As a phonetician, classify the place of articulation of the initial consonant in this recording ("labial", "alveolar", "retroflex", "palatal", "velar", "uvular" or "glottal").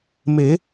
labial